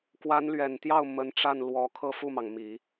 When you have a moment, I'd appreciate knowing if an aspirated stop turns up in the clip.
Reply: yes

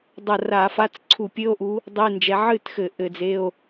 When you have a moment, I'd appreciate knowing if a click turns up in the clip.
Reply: yes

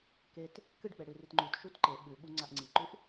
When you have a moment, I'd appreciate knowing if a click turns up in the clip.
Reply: yes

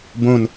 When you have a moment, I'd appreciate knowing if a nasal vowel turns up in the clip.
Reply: yes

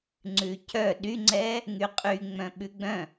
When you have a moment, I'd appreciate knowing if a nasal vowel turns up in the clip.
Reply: yes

